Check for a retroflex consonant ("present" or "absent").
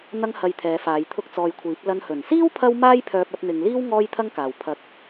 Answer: absent